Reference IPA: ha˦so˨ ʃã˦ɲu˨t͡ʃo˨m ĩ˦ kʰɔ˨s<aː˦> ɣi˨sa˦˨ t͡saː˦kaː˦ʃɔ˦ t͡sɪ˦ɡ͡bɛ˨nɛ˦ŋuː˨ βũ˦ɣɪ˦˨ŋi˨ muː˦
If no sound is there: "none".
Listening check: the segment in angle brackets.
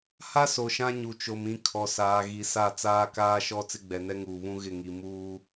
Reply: aː˨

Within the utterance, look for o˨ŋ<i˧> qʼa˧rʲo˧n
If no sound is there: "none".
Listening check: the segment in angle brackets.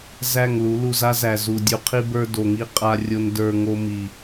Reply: i˧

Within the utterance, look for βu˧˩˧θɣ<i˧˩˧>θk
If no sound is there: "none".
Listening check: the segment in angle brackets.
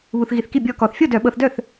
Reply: i˧˩˧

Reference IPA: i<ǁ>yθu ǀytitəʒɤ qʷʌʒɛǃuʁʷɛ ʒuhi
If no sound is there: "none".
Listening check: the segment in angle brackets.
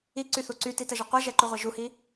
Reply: ǀ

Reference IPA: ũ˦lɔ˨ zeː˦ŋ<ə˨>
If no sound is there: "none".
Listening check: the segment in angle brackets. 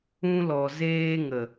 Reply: ə˨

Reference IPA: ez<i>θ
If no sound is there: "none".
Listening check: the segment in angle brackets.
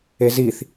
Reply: i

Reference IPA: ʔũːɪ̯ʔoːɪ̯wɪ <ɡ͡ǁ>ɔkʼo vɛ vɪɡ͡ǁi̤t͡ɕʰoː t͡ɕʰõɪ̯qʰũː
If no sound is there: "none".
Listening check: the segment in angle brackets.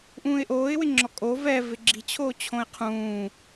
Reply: ŋ͡ǁ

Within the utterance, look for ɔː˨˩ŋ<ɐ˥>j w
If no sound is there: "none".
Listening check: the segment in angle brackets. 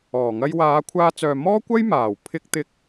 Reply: ɐ˥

